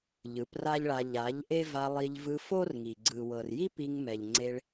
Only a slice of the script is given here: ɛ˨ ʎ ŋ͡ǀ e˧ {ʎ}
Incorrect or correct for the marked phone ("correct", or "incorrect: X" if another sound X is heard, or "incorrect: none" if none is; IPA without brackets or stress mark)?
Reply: incorrect: ɭ